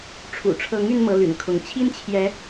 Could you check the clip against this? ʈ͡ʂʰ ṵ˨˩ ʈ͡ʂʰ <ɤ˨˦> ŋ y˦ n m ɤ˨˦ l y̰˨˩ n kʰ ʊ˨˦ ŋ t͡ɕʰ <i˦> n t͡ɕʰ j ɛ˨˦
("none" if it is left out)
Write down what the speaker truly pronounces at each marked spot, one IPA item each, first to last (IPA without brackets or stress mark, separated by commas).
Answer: ɤ˨˦, i˦